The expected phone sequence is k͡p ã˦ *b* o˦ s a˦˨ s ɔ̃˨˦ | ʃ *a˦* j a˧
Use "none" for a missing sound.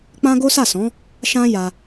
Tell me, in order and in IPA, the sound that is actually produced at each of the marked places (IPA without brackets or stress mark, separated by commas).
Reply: ɡ, ã˦